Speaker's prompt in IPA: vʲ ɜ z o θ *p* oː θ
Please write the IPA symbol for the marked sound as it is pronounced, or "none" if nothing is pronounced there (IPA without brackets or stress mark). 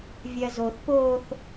p